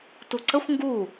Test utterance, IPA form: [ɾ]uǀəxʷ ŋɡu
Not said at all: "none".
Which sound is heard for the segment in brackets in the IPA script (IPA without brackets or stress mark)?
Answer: t